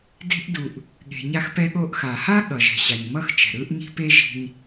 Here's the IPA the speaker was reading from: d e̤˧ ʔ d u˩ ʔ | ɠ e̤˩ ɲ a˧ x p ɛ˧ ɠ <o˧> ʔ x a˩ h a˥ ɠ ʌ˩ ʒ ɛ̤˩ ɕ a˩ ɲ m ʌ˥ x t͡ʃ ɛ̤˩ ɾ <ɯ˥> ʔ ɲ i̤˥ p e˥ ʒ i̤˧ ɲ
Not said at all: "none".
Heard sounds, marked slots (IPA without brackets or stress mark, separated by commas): o˧, ɯ˥